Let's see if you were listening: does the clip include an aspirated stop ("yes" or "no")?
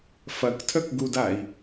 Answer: yes